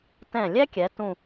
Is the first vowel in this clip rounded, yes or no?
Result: no